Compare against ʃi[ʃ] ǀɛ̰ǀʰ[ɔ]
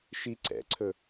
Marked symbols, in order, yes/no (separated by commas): no, no